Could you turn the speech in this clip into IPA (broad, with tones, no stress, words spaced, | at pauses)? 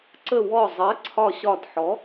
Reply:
ǀə˧˩wɔ˧˩ zˤɜ˨˥ ǀʰɒ˧˩ɕɒ˧˩d ħɔ˨˥